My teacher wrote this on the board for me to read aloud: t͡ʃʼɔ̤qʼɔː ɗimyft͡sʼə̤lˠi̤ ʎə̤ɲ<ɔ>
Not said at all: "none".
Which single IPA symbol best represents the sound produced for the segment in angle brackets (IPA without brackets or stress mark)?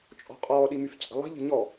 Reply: ɔ